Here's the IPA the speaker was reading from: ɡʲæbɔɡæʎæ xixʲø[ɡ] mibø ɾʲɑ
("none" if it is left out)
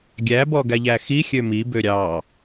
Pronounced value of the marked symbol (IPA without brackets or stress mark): none